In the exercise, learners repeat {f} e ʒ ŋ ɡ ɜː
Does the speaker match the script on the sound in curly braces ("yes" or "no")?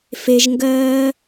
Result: yes